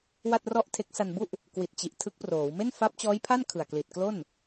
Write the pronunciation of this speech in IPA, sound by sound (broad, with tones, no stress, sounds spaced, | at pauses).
w a˥˩ t̚ r ɔ˥˩ ʔ tʰ e˦˥ k̚ s a˧ n b u˥˩ ʔ | k w i˨˩ t̚ t͡ɕ i˨˩ ʔ tʰ ɯ˦˥ k̚ p r oː˩˦ w m e˥˩ n f a˦˥ p̚ t͡ɕ ɔː˦˥ j pʰ a˥˩ n kʰ ɯ˨˩ a̯ k l i˨˩ t̚ k l o˥˩ n